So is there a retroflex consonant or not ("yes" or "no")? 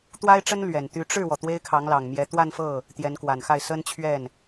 yes